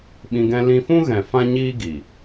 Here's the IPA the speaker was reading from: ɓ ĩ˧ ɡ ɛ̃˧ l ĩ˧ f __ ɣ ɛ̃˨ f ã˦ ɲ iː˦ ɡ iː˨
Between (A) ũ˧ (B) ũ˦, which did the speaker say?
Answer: B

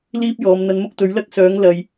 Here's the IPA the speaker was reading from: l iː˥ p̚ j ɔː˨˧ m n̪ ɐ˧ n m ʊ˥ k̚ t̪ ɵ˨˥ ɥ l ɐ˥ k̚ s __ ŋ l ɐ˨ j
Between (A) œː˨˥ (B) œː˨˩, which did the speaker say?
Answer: A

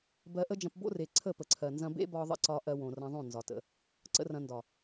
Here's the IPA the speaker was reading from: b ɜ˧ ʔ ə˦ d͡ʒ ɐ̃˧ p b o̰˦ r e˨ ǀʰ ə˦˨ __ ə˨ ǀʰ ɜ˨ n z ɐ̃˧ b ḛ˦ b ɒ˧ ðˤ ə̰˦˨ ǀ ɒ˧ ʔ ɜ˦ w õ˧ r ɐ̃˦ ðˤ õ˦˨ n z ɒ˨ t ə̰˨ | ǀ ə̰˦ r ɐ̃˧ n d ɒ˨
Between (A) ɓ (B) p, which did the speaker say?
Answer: B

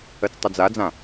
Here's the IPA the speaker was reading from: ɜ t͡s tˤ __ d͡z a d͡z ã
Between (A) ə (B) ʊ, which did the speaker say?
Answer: B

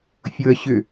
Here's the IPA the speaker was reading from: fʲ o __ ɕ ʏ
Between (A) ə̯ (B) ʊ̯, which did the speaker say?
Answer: A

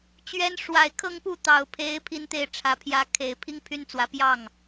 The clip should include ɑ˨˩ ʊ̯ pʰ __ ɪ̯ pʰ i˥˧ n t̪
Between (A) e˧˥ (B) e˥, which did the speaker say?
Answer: A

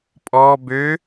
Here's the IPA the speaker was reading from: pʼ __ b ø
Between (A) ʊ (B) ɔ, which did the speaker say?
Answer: B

